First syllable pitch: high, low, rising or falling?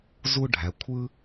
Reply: high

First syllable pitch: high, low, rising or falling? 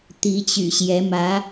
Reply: rising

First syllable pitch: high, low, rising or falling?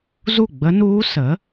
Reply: falling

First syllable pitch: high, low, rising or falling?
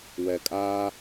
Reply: low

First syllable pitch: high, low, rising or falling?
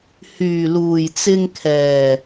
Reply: low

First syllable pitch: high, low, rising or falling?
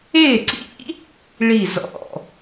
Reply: falling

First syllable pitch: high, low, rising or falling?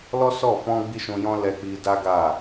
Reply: high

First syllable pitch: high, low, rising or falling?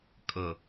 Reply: low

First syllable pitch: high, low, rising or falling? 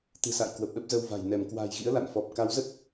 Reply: low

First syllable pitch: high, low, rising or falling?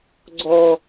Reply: high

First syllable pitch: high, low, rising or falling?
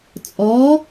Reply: rising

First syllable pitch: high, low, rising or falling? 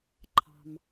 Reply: low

